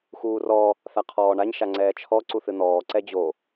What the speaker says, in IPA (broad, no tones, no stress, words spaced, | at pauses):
xuːrɔ | θaqʰɔːɳaɲ ʃaŋ͡ǀɛːt͡ʃʰɔ ǀuθɨn̪ɔː ǀɛd͡ʑo